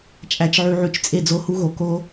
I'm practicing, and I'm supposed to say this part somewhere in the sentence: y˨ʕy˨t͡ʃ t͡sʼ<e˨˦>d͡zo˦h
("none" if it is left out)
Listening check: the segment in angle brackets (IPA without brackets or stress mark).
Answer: e˦˨